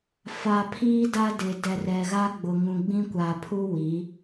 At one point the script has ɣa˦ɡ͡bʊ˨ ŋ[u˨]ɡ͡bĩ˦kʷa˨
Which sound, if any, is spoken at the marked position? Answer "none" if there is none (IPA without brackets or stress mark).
ũ˨